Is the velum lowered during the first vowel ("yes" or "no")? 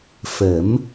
no